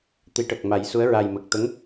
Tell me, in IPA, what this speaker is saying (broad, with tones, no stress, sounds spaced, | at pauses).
t̪ i˨˩˦ ʈ ə˨˩ k̚ m a˨˩˦ j s u˧˥ ə̯ ɹ a˨˩ j m ə˨˩ k̚ t̪ ə˧˥ ŋ